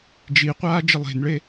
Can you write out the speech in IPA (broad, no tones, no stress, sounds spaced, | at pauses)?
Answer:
d͡ʒ i qʷ aː d͡ʒ ɪ lˠ e̤ n ɭ e